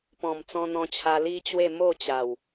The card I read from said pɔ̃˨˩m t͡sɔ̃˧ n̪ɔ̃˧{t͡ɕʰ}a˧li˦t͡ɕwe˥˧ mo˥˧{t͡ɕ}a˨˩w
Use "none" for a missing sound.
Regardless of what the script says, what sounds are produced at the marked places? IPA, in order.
t͡ɕʰ, t͡ɕ

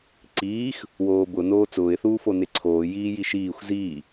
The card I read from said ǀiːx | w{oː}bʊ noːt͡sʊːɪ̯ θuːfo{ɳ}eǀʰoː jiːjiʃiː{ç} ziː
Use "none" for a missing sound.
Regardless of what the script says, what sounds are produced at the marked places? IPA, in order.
oː, n, xʷ

